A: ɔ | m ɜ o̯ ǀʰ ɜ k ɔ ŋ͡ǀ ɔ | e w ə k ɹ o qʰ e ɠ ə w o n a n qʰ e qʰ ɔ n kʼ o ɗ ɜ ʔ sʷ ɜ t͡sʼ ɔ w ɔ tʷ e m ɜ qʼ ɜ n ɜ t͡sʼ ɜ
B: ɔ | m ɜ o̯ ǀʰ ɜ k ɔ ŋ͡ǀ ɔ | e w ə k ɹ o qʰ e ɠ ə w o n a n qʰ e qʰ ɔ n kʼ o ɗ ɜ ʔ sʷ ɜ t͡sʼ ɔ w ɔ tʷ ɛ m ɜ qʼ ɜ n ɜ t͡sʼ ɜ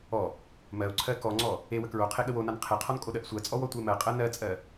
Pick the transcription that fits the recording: A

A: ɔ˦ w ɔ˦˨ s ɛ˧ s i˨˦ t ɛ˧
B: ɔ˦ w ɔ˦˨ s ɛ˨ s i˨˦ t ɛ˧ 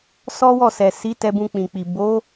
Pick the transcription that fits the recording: B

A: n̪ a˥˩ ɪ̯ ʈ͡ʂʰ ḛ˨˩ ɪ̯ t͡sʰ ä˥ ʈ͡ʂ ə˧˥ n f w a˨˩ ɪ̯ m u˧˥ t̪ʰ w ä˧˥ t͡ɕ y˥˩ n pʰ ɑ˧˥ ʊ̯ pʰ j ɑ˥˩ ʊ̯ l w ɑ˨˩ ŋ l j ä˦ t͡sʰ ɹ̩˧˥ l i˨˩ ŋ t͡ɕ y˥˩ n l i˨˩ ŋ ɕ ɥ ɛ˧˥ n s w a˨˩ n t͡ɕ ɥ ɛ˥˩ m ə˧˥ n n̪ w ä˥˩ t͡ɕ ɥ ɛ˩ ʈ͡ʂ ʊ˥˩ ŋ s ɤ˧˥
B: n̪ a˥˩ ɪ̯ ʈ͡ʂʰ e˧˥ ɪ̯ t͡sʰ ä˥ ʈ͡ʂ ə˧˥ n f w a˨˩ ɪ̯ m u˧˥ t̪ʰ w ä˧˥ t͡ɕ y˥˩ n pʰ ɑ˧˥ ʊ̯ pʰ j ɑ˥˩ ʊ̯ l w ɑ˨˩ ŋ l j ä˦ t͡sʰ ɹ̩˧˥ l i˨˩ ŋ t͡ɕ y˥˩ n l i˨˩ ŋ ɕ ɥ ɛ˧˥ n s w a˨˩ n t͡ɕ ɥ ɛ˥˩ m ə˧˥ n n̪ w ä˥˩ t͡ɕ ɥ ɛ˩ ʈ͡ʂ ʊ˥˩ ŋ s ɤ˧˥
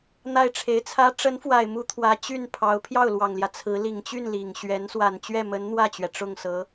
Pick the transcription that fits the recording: B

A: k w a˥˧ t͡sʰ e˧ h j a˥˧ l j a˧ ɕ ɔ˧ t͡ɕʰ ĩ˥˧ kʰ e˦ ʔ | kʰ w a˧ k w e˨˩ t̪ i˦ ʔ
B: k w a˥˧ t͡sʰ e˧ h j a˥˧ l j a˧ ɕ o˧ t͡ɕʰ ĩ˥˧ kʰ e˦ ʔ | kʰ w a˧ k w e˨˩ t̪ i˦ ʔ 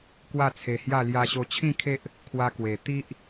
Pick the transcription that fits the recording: B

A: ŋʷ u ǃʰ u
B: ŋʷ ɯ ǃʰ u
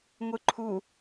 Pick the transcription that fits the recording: B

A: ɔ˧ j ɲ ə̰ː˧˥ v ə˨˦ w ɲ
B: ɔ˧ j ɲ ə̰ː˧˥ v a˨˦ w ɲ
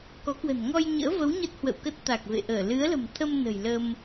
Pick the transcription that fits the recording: A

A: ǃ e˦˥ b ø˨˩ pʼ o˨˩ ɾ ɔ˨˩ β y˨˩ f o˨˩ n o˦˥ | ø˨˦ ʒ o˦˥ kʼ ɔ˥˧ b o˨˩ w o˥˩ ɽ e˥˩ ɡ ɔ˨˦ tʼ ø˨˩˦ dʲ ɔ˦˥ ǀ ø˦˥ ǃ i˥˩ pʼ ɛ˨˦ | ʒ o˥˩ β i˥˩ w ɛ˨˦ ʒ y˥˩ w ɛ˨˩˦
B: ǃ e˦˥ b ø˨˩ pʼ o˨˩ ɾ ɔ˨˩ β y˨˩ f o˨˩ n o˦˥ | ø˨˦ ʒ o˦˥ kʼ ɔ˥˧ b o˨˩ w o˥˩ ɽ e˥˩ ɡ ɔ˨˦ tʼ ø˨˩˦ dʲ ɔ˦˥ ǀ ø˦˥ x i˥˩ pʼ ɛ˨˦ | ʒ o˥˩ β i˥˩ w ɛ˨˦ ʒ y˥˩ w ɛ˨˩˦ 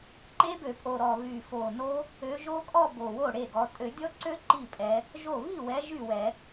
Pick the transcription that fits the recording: A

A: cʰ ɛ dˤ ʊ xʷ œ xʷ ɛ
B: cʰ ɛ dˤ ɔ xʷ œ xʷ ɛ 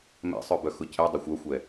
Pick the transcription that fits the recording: A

